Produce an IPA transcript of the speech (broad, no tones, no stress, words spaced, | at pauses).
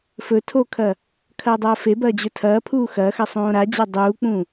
fɵ tʰokʰɐ | kʰɐːdˤɐːfebɐː d͡ʑɵtʰɐːpʰuː xɐːxɐ sˤõːɾad͡ʑa dˤuːk͡pũ